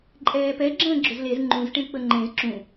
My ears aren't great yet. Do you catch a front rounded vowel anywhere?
yes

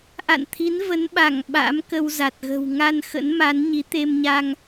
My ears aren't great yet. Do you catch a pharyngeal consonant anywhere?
no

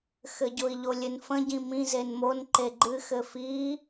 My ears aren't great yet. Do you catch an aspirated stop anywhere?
no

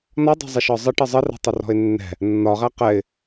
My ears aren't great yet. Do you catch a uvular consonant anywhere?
yes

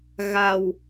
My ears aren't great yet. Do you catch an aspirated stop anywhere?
no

